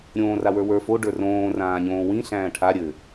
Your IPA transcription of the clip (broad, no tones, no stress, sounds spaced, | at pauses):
ɾʲ õː r a w ə˞ w ə˞ f o ɖ ə˞ r õː r ãː ɲ õː w ĩ ɬ æ̃ː ʈʰ a ɾʲ ɘ